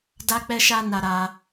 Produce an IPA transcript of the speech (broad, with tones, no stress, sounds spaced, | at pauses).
d a˦ k͡p ɛ˦ ʃ a˦ n a˧ ɾ a˧